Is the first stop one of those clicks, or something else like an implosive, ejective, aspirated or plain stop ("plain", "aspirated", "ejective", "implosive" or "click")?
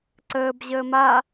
click